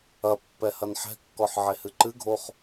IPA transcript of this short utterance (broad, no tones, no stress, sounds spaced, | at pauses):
ɐ pː ɛ h ɐ n ħ ɛ̤ kː ɔ ħ ʕ e h ɨ ǃ ɨ ɡʱ o χ